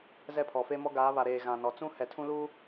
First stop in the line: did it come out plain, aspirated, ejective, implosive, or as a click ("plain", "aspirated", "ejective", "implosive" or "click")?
aspirated